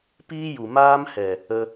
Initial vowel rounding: unrounded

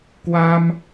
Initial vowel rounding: unrounded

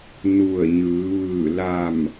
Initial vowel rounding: rounded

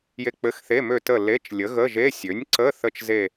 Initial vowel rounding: unrounded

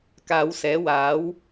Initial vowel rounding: unrounded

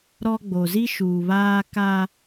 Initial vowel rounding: rounded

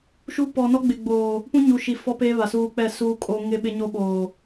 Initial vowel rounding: rounded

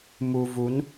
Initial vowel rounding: rounded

